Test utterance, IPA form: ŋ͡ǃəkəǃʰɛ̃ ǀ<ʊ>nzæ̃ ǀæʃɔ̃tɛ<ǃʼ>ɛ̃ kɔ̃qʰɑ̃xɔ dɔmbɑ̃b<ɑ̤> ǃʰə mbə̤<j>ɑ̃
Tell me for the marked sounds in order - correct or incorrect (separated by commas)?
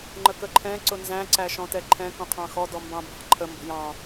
correct, incorrect, correct, correct